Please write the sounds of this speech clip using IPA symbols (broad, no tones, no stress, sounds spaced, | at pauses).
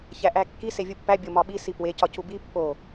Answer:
ç æ ʔ æ kː i s e vʲ u pː æ bʲ o m ɒ ɓ i s i p w e c ɒ c u b i pː o